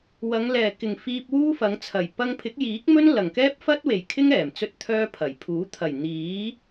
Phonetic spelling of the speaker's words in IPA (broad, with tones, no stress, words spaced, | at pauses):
wɐ˨˧ŋ lɛː˨˩kɪ˨˩ŋfiː˧p̚ wuː˥fɐ˨˧ŋt͡sʰɐ˨˩j pɐ˧ŋpʰɪ˨˥k̚jiː˨˥k̚mɵ˥n lɐ˨˩ŋ kɛː˥p̚fɐ˥t̚we˨˩jkʰɪ˥ŋ ɛː˨˩mt͡sɵ˥t̚t̪ʰœː˥pʰɐ˨˩j pʰuː˨˥ t̪ʰɐ˨˩jn̪iː˨˥